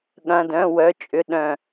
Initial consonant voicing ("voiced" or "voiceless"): voiced